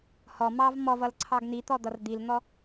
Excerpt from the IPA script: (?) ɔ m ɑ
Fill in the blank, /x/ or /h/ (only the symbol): h